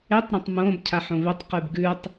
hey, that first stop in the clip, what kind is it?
plain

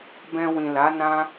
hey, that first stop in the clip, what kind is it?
plain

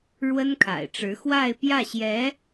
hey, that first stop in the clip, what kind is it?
aspirated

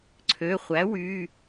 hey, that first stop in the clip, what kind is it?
click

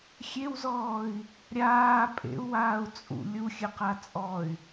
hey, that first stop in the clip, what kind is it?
ejective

